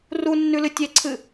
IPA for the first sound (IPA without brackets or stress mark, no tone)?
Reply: r